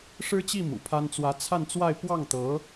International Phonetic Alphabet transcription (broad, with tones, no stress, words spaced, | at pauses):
ʂɻ̩˥t͡ɕi˥˩ mṵ˨˩pʰa˥n t͡swä˧˥t͡sʰa˥˧nt͡swa˥˧ɪ̯ pwɑ˥˩ŋt̪ɤ˧˥